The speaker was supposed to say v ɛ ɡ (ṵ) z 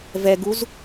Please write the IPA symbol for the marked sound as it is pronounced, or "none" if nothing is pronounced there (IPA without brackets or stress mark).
u